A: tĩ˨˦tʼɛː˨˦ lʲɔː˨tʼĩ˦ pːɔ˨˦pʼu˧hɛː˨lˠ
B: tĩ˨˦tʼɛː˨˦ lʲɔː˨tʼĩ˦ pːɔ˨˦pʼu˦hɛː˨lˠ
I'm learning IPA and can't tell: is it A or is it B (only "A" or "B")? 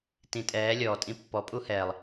B